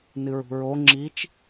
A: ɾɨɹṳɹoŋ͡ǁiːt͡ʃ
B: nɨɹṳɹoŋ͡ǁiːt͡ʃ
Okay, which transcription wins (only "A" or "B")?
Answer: B